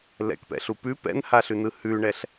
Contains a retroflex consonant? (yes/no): yes